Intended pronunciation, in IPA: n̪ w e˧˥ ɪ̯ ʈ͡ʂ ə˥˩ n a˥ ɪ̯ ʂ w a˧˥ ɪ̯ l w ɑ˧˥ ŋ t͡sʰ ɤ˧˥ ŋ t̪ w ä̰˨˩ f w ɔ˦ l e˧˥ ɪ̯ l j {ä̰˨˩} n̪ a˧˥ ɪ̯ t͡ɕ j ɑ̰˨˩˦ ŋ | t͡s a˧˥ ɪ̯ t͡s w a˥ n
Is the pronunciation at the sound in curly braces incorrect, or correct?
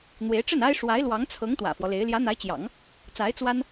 incorrect